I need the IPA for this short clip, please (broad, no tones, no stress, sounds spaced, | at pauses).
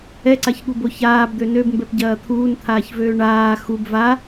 ɛ ǀ a ç ɠ u b o ç aː b d̪ ø n ø b m b ɛ p ɟ ɐː t̪ʰ uː n t̪ʰ aː ç v øː ɳ aː x u b v a